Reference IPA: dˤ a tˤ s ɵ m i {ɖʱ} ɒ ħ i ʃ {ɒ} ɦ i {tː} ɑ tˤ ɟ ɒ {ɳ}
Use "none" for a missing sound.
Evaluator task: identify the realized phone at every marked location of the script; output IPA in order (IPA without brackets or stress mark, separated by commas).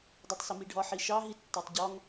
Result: ɖʱ, ɑ, tː, ŋ